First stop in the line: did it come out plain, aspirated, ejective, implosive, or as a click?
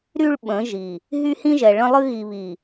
implosive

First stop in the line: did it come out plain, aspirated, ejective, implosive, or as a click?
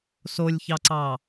click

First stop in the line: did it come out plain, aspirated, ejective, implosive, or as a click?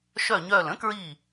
plain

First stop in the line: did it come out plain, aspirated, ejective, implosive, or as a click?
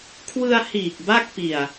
aspirated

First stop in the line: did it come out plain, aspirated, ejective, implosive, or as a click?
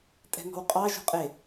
ejective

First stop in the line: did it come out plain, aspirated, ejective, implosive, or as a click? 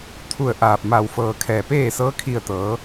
aspirated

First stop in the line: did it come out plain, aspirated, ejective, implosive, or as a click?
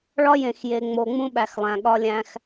implosive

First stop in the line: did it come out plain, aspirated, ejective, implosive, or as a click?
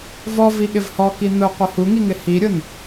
implosive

